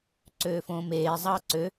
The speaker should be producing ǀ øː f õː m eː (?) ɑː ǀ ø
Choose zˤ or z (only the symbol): zˤ